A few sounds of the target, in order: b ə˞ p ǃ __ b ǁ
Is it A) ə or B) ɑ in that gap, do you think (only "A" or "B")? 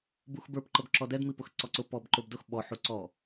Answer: A